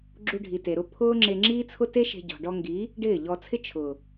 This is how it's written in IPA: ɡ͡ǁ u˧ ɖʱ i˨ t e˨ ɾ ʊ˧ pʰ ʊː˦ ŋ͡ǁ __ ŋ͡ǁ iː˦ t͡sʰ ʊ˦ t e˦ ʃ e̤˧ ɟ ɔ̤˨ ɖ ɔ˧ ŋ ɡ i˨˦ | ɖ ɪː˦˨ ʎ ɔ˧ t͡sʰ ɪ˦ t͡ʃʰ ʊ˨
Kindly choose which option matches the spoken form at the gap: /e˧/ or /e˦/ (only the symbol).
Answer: e˧